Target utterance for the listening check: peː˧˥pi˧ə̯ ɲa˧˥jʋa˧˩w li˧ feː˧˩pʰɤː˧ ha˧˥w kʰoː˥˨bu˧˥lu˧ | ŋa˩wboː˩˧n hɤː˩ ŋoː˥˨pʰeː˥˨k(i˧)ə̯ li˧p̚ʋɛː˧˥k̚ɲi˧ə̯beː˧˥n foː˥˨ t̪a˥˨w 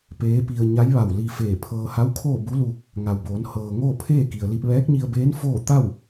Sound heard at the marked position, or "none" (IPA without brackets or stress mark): i˩